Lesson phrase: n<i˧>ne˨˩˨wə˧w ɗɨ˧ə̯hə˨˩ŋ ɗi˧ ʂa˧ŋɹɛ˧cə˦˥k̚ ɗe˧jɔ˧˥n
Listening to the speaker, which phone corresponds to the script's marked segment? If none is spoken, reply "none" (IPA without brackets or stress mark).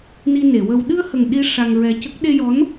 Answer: i˧